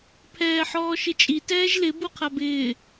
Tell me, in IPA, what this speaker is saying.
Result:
pʰ ɛː ħ ɔː ʃ ɪ t͡ʃʼ i t ɛː ʒ l ɪ b u qʰ a b ɪː

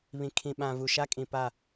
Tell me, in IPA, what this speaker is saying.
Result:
β ĩ˨ kʰ ĩ˨ ɓ ã˨ v u˨ ʃ a˦ kʼ ĩ˨ p a˦˨

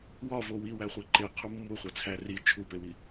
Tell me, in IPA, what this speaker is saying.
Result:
w ɒ v o w i w æ χʷ i ǃ e qʰ u mː u χʷ æ t͡sʰ æ r i t͡ʃʰ u p e w i

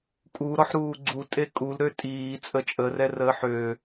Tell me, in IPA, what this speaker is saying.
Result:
kʼ u ɾ ɔ ħ ɾ uː ɡ͡ǀ u tʼ e kʼ u l ɾ ø tʼ iː t͡sʼ ə t͡ʃʼ ə r ɛ r əː ħ ø

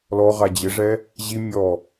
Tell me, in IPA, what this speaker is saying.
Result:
l ɔ ʁ a d͡ʑ ɪ ʐ ɛ | ʑ i mʲ ɔ

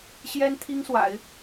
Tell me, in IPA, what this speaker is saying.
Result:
ɕ j ɛ˥ n t̪ʰ i˥ ŋ s w a̰˨˩˦ ɪ̯

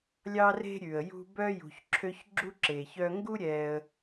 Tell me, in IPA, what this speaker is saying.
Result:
lʲ ɑ˦ r e̤˦ ɾʲ ʉ˩ ə̯ j ṳ˦ b œ˥ j ṳ˨ ç ǁʰ ø˦ ç ɡ͡ǁ u˥ ǁ e˩ ç œ˦ ŋ ɡ u˥ ɾʲ ɛ˨ ə̯

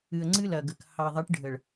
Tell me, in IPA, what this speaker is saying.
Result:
ɨ˨ ə̯ ŋ͡ǀ ɨ˦ l ɐ˨ ɡ ə˨ k h ɑ˨ ðˤ ə˨˦ ʈ ɖʱ ə˨ ɭ

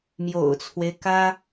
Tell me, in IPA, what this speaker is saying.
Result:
m j o̰˨˩ ʊ̯ t͡sʰ w e˦ ɪ̯ k ä˥

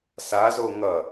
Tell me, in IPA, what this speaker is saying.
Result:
s a z o ŋ ʌ

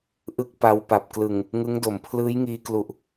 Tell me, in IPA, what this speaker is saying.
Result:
ʔ ɯ˦˥ k̚ p a˧ w p a˨˩ p̚ k l ɯ˨˩ ŋ | ŋ ɯ˦˥ ŋ d o˨˩ m pʰ l ɯː˦˥ j ŋ iː˧ k l u˨˩ ʔ

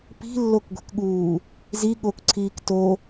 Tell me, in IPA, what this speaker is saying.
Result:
p i̤ lː o k ɡʷ e̤ k ɠ uː | z i ɠ o k ǀʰ iː k t o

